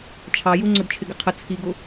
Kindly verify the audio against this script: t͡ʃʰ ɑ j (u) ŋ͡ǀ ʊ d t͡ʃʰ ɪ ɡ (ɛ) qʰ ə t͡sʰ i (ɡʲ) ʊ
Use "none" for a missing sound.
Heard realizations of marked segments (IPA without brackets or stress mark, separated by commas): u, ɪ, ɡ